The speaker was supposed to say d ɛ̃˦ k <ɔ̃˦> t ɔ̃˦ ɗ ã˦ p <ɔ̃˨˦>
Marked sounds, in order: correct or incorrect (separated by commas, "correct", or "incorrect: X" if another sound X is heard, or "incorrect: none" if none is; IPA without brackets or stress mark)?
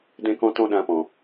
correct, incorrect: ɔ̃˧